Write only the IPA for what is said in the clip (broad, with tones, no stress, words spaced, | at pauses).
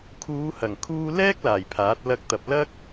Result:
kʰuː˨˧hɐ˨˩ŋkʰuː˧ lɛː˥k̚laː˨˩j pʰaː˨˥t̚lɐ˥k̚t̪ɐ˧p̚ lɐ˥k̚